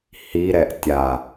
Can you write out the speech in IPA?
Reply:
hiɾɛʔ tʲa

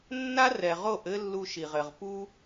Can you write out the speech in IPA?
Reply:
nːa˦rɛ˨ʁo˦˨ʔɘ˦ lːu˦ʃi˨ʁɘ˨ʁ pu˦

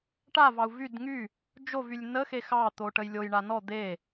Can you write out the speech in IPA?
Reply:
ʈavɑu̯ vyd ŋy | d͡ʒovylʲ nəxe xɑt̪o ʈəjlʲojɳa nɔ d̪e

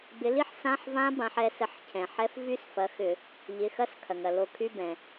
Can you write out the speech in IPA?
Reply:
bɪ˨˦li˦˥ħ sã˧˥˧ħvã˦˥ bã˨˦ħɛ˨˦sə˧˩˧ħ cʰɛ̃˩ħɛ˦˥f vy˦˥s fɐ˨˦xʏ˧˩˧ | ʎɪ˩˧˩ xɐ˦˥s kʰɐ˩ŋɐ˩ lo˧˩˧kʰy˧˥˧bɛ̃˩

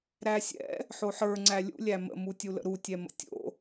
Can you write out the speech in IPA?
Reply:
ɾæsʲɛ̰ | ħoħə˞ ŋ͡ǀælʲṵ lʲæmə̰ mutʲulə̰ɾu tʲɛmə̰tʲo̰

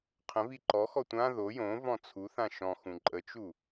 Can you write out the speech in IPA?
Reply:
qʰə̃vi ǃɔxɔ tʷã ðo jõ vɔ̃t͡sʰuθã ʃɔ̃xũ ǃʼət͡ʃu

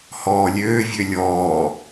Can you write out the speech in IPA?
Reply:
hɔːlʲøːvʲø lʲɔː

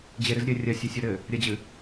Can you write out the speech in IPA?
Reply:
d͡ʑeɾɨz ɾʲɘ rʲɐsʲɐsʲɔ ɾɘ | ɾʲɐd͡ʑɨ

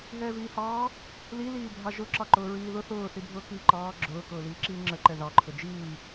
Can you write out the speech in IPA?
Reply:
ɦɛːviːhɑː | li liːbʱɑʒʊ ǁɑǃʊːɹiːðʊ θʊː θibʱʊːkiːǃɑː ɡ͡ǁʊː kʊːliːǁiːŋ͡ǁə ǃɛðɑ ǃʰʊd͡ʒiː

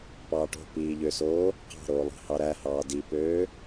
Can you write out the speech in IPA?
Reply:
pɑːʈo̤ piːʎøsoː | qɑ̤ɾoːlˠɑ̤hɑ ɾæhɑː dipøː

